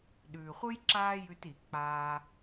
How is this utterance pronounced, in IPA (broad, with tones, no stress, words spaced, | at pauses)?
ɗʉː˨χʷɯ˦j ǁaː˦jʉ˧t i˨ k͡paː˦